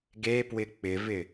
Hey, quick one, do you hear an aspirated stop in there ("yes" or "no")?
no